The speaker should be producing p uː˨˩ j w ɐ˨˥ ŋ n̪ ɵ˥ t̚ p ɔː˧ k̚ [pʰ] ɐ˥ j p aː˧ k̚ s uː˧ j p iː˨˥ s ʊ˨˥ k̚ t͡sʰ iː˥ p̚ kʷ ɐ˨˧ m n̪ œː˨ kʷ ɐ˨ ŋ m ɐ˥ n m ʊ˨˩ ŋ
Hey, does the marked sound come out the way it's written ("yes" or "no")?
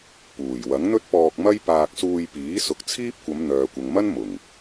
no